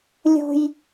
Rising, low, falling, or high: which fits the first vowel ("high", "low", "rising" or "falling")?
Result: high